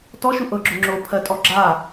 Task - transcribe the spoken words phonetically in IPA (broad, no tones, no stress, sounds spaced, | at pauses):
t ɔ ʃ u ʔ ɤ ɡ͡ǁ o ŋ͡ǁ o pʰ ɜ tʼ ɔ ɡ͡ǁ a